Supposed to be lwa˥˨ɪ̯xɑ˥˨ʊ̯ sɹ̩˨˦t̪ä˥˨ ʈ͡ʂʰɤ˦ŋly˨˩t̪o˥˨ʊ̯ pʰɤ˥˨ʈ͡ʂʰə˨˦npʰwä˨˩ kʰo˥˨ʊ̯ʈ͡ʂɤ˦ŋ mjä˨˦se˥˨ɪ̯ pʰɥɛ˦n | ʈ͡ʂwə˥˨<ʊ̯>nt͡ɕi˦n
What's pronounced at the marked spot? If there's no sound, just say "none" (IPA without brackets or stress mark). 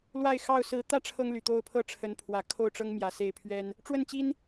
none